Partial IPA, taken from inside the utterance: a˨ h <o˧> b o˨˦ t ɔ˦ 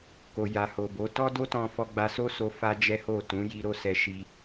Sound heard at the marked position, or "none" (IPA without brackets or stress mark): o˨